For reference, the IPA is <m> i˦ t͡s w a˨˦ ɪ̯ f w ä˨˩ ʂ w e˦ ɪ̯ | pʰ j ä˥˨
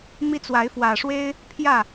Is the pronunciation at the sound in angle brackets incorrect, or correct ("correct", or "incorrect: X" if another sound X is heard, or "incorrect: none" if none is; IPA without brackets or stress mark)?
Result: correct